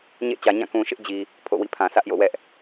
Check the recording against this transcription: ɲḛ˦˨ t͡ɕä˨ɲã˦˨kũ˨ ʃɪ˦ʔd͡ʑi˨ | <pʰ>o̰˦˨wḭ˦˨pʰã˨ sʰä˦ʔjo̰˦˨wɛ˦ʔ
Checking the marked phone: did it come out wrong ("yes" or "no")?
no